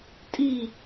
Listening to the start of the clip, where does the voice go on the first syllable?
falling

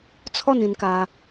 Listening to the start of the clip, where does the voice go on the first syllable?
falling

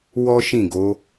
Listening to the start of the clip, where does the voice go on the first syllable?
high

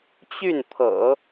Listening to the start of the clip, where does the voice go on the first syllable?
falling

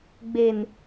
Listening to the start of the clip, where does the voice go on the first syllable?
low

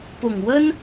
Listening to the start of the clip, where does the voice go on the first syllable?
low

